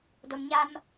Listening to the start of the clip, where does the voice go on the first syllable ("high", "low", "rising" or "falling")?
low